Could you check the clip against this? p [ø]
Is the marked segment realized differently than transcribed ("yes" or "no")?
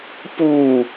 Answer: yes